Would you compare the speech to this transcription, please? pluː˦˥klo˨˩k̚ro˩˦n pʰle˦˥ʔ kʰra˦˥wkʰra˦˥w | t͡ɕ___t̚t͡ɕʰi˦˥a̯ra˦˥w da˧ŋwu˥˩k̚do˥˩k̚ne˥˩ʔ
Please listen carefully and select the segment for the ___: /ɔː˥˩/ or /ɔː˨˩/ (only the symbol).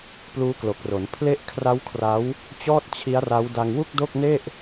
ɔː˥˩